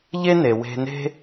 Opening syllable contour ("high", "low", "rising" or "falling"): high